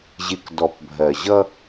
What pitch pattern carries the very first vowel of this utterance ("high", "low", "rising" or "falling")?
low